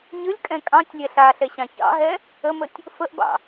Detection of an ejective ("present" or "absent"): present